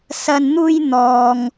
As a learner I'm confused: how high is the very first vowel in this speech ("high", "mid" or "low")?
low